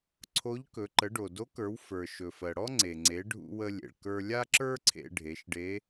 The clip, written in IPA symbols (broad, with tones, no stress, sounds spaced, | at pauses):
ǀʰ o˧˥ ʎ k ɵ˩˧ ǃ ə˩˧ ɖ o˩ d o˧˥ k ə˞˩˧ w f ə˞˩ ʃ ɵ˩ f ɜ˩ ɽ ɔ˥ ŋ͡ǀ e˩ ŋ͡ǀ e˩˧ ɖʱ ṵ˧ w ə˧ lʲ ḛ˩ ɭ k ə˞˧ lʲ a˥ ǁ ə˞˥ ǀʰ ḛ˧ ɖʱ e˩˧ ʃ ɖ e˧˥